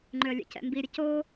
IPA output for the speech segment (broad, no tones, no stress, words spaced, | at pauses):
ŋ͡ǃʏə̯lʲḛcɛ̰mbi ɾʲəco